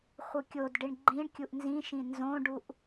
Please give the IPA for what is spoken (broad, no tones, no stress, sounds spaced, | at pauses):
χʷ ɯ kʲ o d ɖ i ɳ ɡ͡ǃ ĩ ɳ kʲ u ʔ n z ĩ ʃ ĩ n z õ ɖ u ʔ